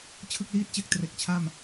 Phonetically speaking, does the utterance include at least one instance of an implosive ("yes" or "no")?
no